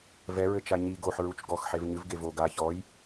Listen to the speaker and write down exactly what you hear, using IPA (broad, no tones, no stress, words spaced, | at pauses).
vɛ ɹɘt͡ʃaɲi ɡoħ ɹut͡ʃɡɔx ħevɲɨv ɡevo ɡa çɔj